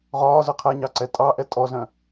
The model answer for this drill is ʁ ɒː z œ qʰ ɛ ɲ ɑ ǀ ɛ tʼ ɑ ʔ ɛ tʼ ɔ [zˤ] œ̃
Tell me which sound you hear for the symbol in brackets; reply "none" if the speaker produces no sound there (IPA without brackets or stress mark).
z